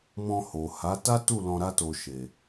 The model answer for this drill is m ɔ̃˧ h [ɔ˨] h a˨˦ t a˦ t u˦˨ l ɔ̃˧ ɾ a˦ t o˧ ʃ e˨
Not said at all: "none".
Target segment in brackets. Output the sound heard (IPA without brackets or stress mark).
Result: o˨